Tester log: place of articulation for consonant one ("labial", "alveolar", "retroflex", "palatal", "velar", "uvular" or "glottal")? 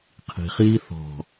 uvular